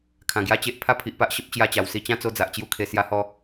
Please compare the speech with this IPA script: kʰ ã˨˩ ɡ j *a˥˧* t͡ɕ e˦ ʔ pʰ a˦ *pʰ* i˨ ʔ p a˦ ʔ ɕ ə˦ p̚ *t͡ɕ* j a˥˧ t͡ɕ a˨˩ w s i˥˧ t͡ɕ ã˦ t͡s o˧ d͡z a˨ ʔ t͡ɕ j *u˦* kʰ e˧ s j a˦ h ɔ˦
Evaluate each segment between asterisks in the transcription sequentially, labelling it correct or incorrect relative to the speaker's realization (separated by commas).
correct, correct, correct, correct